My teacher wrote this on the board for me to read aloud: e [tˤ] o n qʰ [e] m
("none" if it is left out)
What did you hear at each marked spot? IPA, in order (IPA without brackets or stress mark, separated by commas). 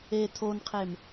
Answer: tʰ, e